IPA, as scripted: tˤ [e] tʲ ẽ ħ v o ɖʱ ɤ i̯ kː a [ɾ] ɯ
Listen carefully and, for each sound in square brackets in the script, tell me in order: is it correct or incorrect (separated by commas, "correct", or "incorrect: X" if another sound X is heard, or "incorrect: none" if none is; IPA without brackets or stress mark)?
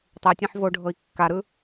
correct, correct